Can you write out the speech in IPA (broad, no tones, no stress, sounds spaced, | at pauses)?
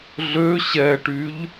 ɮ ø ɕ ɛ ʈ y ʎ